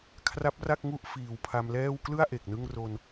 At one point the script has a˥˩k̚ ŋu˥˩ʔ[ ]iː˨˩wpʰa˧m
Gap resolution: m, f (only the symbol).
f